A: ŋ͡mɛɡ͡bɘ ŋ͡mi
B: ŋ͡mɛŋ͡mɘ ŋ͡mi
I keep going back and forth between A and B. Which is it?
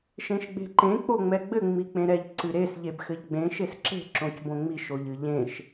A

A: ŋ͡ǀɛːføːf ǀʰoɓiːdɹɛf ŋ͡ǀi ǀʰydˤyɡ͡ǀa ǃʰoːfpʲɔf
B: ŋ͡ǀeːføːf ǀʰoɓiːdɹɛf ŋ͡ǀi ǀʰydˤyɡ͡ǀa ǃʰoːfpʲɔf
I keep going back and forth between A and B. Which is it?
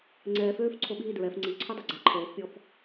A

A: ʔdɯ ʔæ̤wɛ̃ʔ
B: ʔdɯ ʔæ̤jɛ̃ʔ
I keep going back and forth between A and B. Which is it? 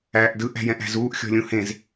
B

